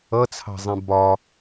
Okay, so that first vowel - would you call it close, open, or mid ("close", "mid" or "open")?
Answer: mid